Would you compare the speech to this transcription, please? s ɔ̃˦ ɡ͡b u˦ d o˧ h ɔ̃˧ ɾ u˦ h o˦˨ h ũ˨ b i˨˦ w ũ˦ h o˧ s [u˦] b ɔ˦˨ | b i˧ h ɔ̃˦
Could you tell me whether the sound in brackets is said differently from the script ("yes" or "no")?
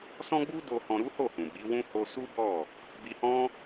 no